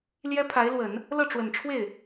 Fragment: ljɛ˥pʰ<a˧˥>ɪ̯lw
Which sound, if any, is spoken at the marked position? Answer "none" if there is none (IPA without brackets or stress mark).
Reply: a˧˥